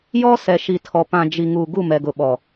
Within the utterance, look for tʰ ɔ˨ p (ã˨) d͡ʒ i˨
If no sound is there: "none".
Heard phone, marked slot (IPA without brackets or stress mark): ã˨